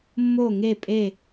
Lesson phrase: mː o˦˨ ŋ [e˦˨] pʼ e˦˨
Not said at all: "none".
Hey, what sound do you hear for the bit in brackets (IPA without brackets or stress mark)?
e˦˨